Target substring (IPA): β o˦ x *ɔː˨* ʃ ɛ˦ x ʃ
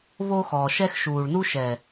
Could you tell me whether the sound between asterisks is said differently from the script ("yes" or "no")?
no